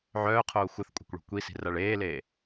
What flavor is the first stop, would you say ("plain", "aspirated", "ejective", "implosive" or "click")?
aspirated